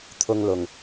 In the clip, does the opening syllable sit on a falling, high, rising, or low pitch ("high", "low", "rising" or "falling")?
high